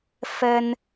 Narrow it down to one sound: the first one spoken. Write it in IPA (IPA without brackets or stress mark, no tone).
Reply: f